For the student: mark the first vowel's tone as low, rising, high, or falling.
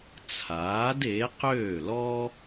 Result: rising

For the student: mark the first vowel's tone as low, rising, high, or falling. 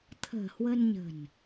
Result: low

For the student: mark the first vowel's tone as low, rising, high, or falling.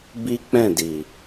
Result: high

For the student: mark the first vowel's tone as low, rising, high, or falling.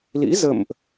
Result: rising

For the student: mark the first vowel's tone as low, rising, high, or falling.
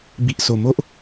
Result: low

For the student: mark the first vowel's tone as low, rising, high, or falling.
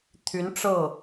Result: rising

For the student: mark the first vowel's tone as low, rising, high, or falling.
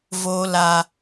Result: high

